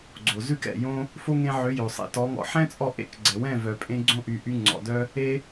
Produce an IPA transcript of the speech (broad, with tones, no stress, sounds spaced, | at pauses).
ɡ͡ǀ o˨ z ʉ˦ k ɛ̰˨ j õ˦ | f o˦ ŋ ẽ˧ ʕ ø˨˦ j o˨ sˤ ḛ˧ t ɔ˨˦ ŋ ɔ̰˧ ħ ɛ̃˦ t͡sʼ ɔ˧ ʔ ḛ˦ k ɡ͡ǀ ɛ˨ w ɛ̃˦˨ v œ˨ pʼ ẽ˧ ɡ͡ǀ õ˧ ʔ y˨ ʔ y˧ ŋ͡ǀ ɔ̰˨ d œ˦ | e˦